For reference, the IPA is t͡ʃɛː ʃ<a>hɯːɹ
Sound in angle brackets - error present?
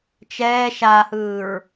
no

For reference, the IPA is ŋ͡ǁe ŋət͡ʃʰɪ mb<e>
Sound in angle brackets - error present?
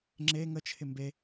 no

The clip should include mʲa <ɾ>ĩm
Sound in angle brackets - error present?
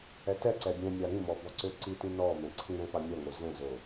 no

